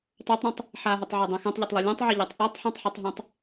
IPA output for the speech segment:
tˤ œ tˤ ɾ ɛ̃ tˤ | ħ a ɦ ɛ tˤ ʕ ɛ dˤ ɛ̃ x ɛ̃ tˤ ʎ ɐ tˤ lˠ ɛ lʲ ã tˤ ʕ e ʎ ɑ tˤ ʔ a tˤ ħ ɛ̃ tˤ ħ ɛ tˤ ɦ ɛ̃ tˤ

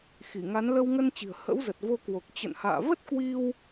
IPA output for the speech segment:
x i˧˩ ŋ a˨˦ n l ə˧ w ŋ ə˧ n t͡ɕ i̤˨˩ ə̯ h ə̰˧˥ w z ə˨˩ t̚ v o˧ k w o˨˩ k̚ t͡ɕ ə̰˧˨ n h a̰ː˧˨ v ə˦˥ t̚ k w i˧ w

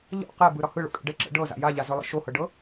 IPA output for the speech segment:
ʎ ɔ̰ q ɛ b ɯ ɾ ɒ h ɯ ɭ o̰ kʼ ɛ̰ ɖ ɛ ǁ ə̰ ɖ ɤ z a̰ j a ʎ a z ɵ lˠ ə̰ ʃ o h ɤ ɖ ɤ

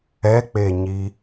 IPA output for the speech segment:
ɛ k͡p e ɲ i

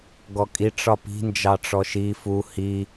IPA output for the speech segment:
ɡ ɔ kʼ i ʈ͡ʂ ɒ p i̤ n d͡ʒ ɑ ʈ͡ʂ ɔ ʃ i f u h i

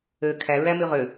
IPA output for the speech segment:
ø kʰ æ ɹ æ m y ʁ ø

